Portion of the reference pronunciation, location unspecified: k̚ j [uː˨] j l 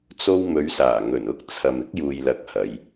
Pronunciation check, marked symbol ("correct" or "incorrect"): correct